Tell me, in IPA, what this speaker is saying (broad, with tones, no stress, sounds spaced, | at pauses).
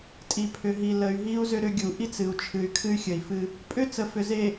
tʼ i˨ pʰ ʏ˨ ɦ i˨ l ə˨ y̯ ɦ i˦ u̯ z ʏ˦ ɾ ʏ˦ ɡʲ u˨ ʔ i˦ t͡s ɨ˨ u̯ t͡ʃʰ ɨ˨ y̯ kʰ ɨ˦ y̯ xʲ ə˨ i̯ f ɨ˦ | pʼ ʏ˦ t͡s ə˨ f ʏ˨ z e˨